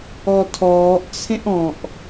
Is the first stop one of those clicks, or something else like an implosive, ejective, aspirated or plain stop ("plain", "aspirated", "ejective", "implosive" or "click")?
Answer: aspirated